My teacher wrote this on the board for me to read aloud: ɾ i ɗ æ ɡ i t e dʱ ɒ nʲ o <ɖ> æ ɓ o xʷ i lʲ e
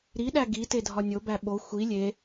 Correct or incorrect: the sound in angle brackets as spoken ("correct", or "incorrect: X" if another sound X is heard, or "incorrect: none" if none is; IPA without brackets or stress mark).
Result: incorrect: b